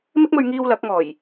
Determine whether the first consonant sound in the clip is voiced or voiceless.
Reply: voiced